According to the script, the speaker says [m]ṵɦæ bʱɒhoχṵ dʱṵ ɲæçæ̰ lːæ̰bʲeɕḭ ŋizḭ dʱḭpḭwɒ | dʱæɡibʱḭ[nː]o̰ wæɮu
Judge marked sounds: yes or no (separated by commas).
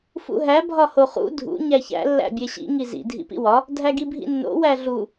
no, yes